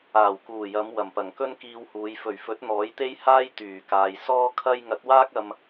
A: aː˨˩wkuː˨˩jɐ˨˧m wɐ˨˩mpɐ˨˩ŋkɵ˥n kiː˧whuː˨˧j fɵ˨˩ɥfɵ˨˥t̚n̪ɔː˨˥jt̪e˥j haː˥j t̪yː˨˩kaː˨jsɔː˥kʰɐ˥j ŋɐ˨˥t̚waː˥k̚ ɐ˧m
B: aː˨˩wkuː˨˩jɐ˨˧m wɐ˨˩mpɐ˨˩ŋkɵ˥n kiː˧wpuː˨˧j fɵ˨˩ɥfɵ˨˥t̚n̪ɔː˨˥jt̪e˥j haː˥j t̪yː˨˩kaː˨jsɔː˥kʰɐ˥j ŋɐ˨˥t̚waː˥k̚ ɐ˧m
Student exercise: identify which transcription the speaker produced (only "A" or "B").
A